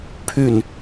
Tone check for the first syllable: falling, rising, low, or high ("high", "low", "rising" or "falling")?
falling